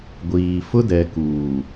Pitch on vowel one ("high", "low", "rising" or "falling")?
low